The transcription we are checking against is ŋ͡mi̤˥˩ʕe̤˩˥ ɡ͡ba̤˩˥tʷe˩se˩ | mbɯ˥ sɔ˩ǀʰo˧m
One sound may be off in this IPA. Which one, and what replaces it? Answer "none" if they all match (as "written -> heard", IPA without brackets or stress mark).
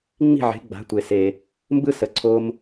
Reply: ɔ˩ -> ə˩